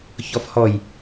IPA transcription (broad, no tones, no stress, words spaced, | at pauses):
çɔfhɔj